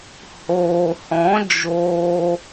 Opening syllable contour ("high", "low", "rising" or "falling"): low